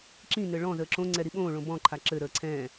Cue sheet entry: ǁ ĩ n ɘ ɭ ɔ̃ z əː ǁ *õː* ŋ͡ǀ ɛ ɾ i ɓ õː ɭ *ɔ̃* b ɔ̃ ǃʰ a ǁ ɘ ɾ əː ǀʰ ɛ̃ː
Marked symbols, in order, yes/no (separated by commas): no, no